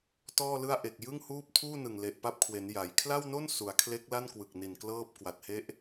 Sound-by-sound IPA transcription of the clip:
t ɔː˥˩ l ɯ˥˩ a̯ ʔ e˨˩ k̚ j ɯ˥˩ ŋ h uː˥˩ p̚ tʰ uː˥˩ n ɯ˨˩ ŋ l e˨˩ ʔ p a˦˥ p̚ kʰ w e˩˦ n j a˩˦ j kʰ l a˥˩ w n o˥˩ n s u˩˦ a̯ kʰ l e˦˥ k̚ l a˥˩ n k w ɯ˨˩ k̚ n i˨˩ n k l ɤː˥˩ p̚ k w a˨˩ t̚ h e˦˥ ʔ

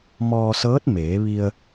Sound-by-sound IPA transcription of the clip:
m ɔː˧ s ɤː˧˥ t̚ m eː˩˧ ʋ i˧ ə̯

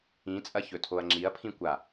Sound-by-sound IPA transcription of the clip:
ĩ t͡sʼ ɐ ç ɵ tʰ o ɐ̯ ŋ͡ǁ i ɐ̯ pʰ ĩ kʷ a

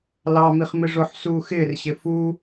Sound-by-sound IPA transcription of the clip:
l ɑ m i χ m ɪ ʐ ʊ ħ s uː x ɪː r ɕ ɪ f u

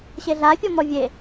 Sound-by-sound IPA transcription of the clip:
ɕ e ɮ a fʲ ɔ m ɔ vʲ e

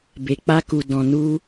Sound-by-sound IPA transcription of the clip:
b e˨ k͡p a˧ k u˨ d ɔ̃˨ n u˧

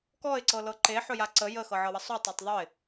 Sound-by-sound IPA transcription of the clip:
k ɔ ɪ̯ ǀ ɤ l ɤ ǃ e ħ ɵ j a ǀ ə j ə x ɤ ʕ ɤ w ə sˤ u tˤ ɤ tˤ ðˤ ɵ ɪ̯

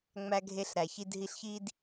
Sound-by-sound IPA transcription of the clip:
ŋ͡m æ˧ ɡʱ e˧ ɬ ɾ æ˨ ç i˧ d ɦ i˧ ɬ ç i˦ d

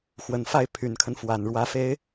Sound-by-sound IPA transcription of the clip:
x w ə˨˩ n f a˥˩ ɪ̯ pʰ y˨˩ n kʰ ə˦ n f w a˨˩ n ɻ w ä˧˥ f e˧˥ ɪ̯

